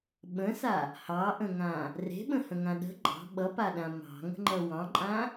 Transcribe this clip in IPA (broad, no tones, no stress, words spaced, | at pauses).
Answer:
ɓə̃sa | hɑʔə̃ŋã | re̤ɓə̃hə̃ŋã ɗə̤ ɡ͡ǃɑ̤ ɓʌpaɗã mɑ̤ŋə̤ŋ͡ǃʌ wɑ̃ǃʼã